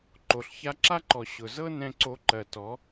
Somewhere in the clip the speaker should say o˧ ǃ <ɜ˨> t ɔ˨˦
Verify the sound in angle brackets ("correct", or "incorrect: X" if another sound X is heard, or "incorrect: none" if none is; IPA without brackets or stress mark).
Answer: correct